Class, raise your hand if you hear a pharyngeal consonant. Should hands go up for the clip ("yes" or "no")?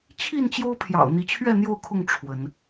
no